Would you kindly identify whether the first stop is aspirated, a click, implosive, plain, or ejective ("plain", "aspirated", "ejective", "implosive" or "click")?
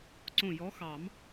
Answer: click